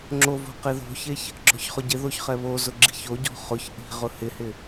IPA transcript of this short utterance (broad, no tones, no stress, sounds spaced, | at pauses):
ŋ͡ǁ o v o̤ q e ð o̤ ç e ç | ɡ͡ǁ ɔ̤ ç χ ʊ ɟ ɪ ð o ç χ ɛ β o z ʊ ɡ͡ǁ i̤ ç o ɟ ɔ̤ χ ʊ ç ʔ i̤ ʁ ʊ h ɪ h ɪ